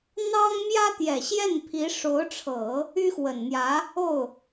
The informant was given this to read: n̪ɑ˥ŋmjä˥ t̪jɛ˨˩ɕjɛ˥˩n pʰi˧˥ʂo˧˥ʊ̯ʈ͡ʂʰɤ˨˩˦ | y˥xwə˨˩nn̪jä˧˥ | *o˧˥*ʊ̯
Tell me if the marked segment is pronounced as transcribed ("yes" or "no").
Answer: no